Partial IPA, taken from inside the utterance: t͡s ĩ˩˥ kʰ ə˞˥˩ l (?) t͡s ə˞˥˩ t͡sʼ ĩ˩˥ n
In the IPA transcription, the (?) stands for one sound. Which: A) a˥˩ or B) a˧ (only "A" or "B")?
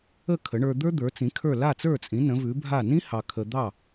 A